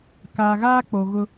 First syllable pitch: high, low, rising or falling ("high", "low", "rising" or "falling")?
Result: low